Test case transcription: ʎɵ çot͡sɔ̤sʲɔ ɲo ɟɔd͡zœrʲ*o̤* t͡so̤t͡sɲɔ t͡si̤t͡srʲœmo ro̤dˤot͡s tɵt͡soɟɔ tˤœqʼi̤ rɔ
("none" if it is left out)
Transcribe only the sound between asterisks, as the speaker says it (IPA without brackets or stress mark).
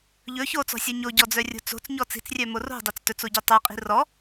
o̤